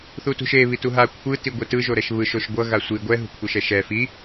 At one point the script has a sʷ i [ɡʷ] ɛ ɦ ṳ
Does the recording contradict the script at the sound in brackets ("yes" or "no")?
no